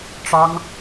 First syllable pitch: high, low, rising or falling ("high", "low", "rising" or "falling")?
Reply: high